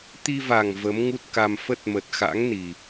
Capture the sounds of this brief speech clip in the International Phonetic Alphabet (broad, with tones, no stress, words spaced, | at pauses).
t̪i˧va˨˩ŋ və˨˦mŋu˦˥t̚ka˧m fə˦˥t̚mə˨˩t̚xa̰˧˥ŋ ni˨˩